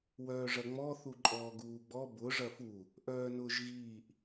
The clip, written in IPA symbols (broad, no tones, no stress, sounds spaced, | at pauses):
w œː ʐ ɐ ŋ͡m ɔ θ u ǃʼ ɔː ɡ uː ɡ͡b ɔ b ʊ ʐ ɐ f u | ʔ œː n ʊː ʒ ɣ iː ʔ